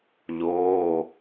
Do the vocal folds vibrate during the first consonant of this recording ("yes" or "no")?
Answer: yes